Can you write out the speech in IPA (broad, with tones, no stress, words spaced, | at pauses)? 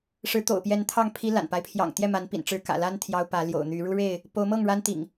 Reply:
ʂɻ̩˨˦t̪o̰˨˩ʊ̯pjɛ˨˦n t̪ʰɑ˥˨ŋpʰi˦la̰˨˩npa˦ɪ̯ pʰjɑ̰˨˩ŋ t̪jɛ˥˨ma˨˦npḭ˨˩n ʈ͡ʂɻ̩˨˦kä̰˨˩la˦n t̪ʰjɑ˦ʊ̯pä˨˦ ljo̰˨˩ʊ̯n̪y˨˦ ɻu˦ɻe˥˨ɪ̯ | po˨˦ʊ̯mɤ˥˨ŋ ɻa˦nt̪ḭ˨˩ŋ